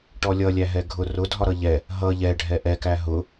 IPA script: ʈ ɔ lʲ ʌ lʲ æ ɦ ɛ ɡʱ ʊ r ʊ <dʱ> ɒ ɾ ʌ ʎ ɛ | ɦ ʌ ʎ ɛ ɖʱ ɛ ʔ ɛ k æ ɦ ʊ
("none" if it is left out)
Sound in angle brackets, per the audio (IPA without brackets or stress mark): dʱ